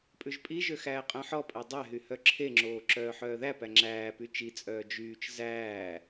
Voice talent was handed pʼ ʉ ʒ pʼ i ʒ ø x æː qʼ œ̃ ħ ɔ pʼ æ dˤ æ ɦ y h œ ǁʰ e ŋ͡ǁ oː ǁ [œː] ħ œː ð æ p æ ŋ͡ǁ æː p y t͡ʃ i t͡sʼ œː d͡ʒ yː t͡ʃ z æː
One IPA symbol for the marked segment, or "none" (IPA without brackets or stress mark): œː